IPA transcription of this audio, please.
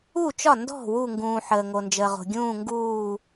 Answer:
u˧˩t͡ʃɒ˧˩ndɔ̤˧˩ wu˧˩ŋɡũː˩ ħəː˩ŋo˩nd͡ʒəː˩ʁo̤˩ ɡʲũː˧˩ŋɡuː˧˩

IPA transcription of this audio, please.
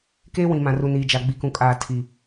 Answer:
keː˦wĩ˨mã˨ ru˨niː˨d͡ʒa˨ ɡ͡bi˨kũ˨kʼaː˨ tʰiː˨

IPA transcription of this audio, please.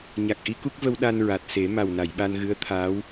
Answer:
ɲa˨˩k̚ʔi˧˥ku˦˥k̚və˧w ɗa˧nɹa˨˩t̚ se˨˩˦ ma˨˩wna˨˩˨jɓa˧n ɣɨ˧˥ə̯t̪ʰaː˧˥w

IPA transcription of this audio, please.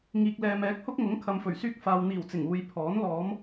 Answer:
ŋiː˨k̚lɛː˨m ɛː˨˥k̚hʊ˥k̚ŋʊ˨˥ŋ kʰɐ˨mfɵ˨˩ɥsyː˧k̚ faː˨wn̪iː˨˩wt͡sɪ˨˩ŋ uː˨jpʰɔː˨˥n lɔː˨˧m

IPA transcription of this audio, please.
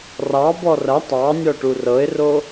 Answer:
rɑbɔ rɐ tˤɑnʲɔʈu rɤɪ̯ro

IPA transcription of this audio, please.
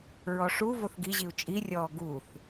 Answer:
ɹɔʂu voθɡiʑiu̯ t͡ʃʼirʲɔː ɡuθ

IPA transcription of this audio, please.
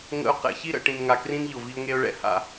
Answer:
ŋə̰˦ʊ̯ qɛ̰˨çi˦ɾə̰˨ ʈĩ˨n ŋa˨krĩ˦n ʎʊ˨vi˦ʊ̯ŋe˦ʊ̯ɭɛ̰˦ ha̰˨

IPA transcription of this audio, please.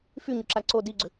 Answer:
fyɲʏǁa ǀo diɡ͡ǀʏ

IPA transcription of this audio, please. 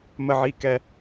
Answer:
mə˨ʕi˨kɛ˨

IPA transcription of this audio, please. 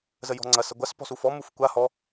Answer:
zəjɔ̤ŋ͡ǀɐ sɐɡʷas pɔ̤sufɔ mufkʷa hɔ

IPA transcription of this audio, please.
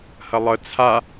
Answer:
hɐlˠə t͡sʰa

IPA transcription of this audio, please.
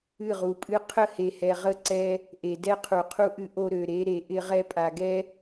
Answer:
ɨ˦˨ʁu˨pʼɨ˦ qʰə˦˨he˨hɛ˨ ʁə˦ǀɛ˦ | ʔe˨dɛ˦qʰu˨qʰu˦ ʔɨ˦ʔo˦ɾø˨ ɾe˦ ɾe˨ʔɪ˦ ʁɛ˦pʼa˨ɡɛ˦

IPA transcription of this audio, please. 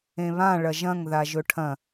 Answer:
ẽβã ɭɐʒɐ̃ŋ ðaʒɵʈʰɐ̃

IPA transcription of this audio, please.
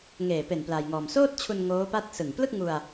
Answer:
ŋeː˨˩pe˨˩n plaː˧jŋɔː˧m soː˥˩t̚t͡ɕʰu˧n ŋoː˦˥pa˥˩t̚ sɯ˨˩ŋ plɯ˥˩k̚ŋu˧a̯

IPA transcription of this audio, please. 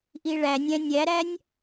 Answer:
ʔiɭænʲæ̃ nʲæɾænʲ

